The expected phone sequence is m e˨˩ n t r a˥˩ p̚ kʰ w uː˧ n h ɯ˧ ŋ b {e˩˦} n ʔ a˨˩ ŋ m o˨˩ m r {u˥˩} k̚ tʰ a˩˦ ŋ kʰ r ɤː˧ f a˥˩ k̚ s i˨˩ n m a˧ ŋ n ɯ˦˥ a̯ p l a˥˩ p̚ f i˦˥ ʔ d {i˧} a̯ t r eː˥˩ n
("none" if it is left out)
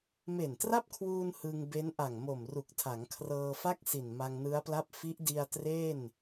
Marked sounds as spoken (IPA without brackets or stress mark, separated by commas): e˦˥, u˨˩, i˧